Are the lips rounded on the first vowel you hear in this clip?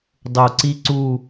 yes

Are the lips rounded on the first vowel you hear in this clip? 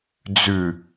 yes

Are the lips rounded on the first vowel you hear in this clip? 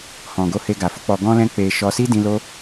yes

